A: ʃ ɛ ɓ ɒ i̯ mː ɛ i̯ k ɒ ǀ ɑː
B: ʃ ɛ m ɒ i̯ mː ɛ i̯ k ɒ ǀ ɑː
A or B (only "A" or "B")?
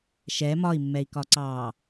B